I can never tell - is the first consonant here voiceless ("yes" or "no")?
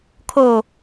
yes